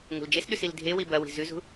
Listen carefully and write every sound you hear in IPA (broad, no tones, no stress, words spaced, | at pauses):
ŋṳld͡ʒesɗʉs ildʱewi bɐwi̤ zʉzṳ